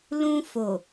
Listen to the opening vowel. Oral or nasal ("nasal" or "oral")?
nasal